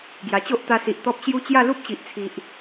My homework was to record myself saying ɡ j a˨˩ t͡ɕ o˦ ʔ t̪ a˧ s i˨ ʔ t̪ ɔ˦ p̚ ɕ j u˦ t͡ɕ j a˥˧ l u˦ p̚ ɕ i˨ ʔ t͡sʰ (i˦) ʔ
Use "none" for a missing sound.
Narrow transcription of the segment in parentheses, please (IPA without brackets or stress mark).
i˨